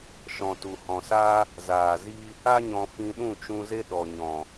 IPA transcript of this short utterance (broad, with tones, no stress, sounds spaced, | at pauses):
ʃ ɔ̃˨ t u˨ h ɔ̃˨ s aː˦ | z aː˨ z i˦ | a˦ ɲ ɔ̃˧ f ĩ˧ ɗ ũ˦˨ t͡ʃ ũ˧ z e˦ ɗ ɔ˨ ɲ ɔ̃˨